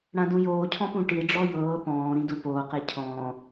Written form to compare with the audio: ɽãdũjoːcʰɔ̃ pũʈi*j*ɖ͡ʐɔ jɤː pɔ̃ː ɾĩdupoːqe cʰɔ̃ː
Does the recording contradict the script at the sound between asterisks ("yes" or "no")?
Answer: yes